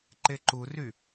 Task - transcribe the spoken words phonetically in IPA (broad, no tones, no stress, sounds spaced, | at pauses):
ǃ e ǃ u r y